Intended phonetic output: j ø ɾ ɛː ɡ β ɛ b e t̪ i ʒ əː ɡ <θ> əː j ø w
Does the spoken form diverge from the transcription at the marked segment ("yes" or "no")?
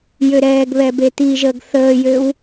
no